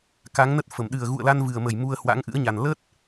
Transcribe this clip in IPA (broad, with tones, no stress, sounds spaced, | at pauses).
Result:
k a˨˦ ŋ n ə˦˥ t̚ f ə˧˩ m ɗ ɨ˨˩ ə̯ ɣ ṵ˧˨ ə̯ l a˧ n v ɨ˨˩ ə̯ m ə˧˩ j m u˧ ə̯ h w a̰˧˥ ŋ ʔ ɨ̰˧˥ ə̯ ɲ a˨˩ n l ə˦˥ t̚